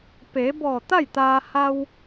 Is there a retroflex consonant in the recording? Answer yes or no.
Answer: no